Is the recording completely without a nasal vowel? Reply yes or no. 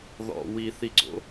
yes